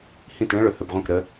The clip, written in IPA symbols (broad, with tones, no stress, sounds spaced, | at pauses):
h ĩ˦˨ t ɭ ə̃˦ ɭ ɵ˧ h ɵ˧ b ʁʷ ə̃˦˨ k ɾ ə˧